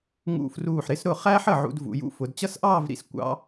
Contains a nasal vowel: no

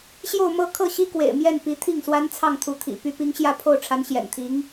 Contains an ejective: no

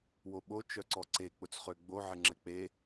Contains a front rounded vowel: yes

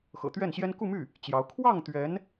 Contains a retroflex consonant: no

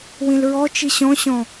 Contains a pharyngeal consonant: no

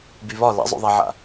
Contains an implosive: no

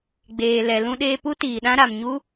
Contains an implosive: yes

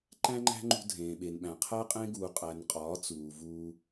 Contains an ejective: yes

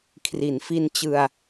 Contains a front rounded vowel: no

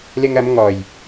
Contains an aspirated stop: no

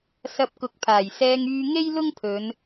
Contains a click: no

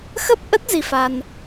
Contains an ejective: no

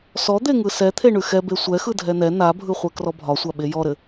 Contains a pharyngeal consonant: no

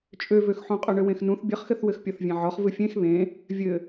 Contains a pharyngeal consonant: yes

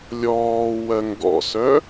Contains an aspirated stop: no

